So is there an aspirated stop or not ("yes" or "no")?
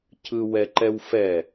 yes